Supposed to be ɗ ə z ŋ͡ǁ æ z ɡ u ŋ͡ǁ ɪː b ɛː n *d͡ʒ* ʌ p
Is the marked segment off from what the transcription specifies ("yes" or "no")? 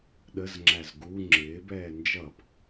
no